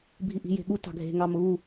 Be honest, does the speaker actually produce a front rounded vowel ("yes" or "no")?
no